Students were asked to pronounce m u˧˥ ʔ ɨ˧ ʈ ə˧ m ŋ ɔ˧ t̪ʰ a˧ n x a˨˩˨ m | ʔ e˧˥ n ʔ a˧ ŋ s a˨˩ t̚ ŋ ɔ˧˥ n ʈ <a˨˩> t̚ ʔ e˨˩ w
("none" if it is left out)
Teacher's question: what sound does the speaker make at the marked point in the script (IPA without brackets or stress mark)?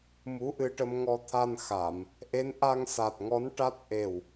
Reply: a˦˥